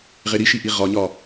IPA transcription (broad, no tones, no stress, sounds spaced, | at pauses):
ʁ e ɾ i ʃ i ʔ i ʁ ɒ ɲ ɒ